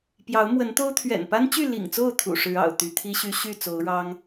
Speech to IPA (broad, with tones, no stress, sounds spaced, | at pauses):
p j ɑ˨˦ ʊ̯ m w ə˨˦ n t̪ o˦ ʊ̯ t̪ʰ ɥ ɛ̰˨˩ n p a˦ n t͡ɕ y˥˨ l ḭ˨˩ ŋ t͡s o˥˨ ʊ̯ t̪ʰ ṵ˨˩ ʂ ɻ̩˨˦ ɑ̰˨˩ ʊ̯ t̪ y˨˦ t̪ʰ i˦ ɕ y˦ ɕ y˥˨ t͡s o˨˦ ʊ̯ ɻ ɑ˦ ŋ